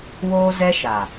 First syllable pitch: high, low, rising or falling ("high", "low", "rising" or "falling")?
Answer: high